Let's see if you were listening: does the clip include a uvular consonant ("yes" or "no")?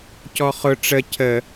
yes